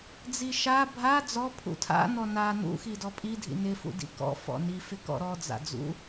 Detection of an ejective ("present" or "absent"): present